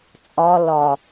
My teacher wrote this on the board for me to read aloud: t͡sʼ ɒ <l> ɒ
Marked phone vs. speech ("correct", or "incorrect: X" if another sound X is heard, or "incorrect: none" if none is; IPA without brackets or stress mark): correct